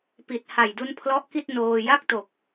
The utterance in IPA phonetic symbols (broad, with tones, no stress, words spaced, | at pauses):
pi˨˩t̚ha˨˩j du˦˥npʰlɔ˦˥ʔki˥˩t̚ noː˧ ja˥˩k̚to˨˩k̚